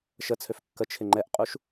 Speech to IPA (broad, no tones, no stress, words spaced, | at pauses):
ʃət͡sʰøf kːət͡ʃʰɪ ŋ͡ǃɛʔqʼuʃ